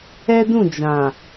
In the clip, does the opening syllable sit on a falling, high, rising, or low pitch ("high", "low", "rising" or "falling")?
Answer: high